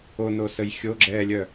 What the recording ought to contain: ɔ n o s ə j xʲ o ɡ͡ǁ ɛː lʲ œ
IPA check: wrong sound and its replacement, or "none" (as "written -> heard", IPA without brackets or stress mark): ɔ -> o